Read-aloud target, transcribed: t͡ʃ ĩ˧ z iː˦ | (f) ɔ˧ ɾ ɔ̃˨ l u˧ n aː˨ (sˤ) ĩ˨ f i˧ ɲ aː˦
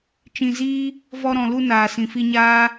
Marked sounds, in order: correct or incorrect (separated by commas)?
incorrect, incorrect